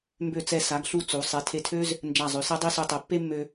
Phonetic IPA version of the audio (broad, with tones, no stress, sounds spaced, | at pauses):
m b ø˧˩ t͡s ɛ˧˩ s a˩˧ ɡ ɬ u˧˩ t͡s u˩˧ sˤ e˩˧ tʰ e˧ tʰ ø˥ z | n d͡ʒ a˧˩ zˤ ø˩˧ s ɛ˥ dˤ i˥˧ s u˧ tˤ ɛ˩˧ pː e˥ mː ø˧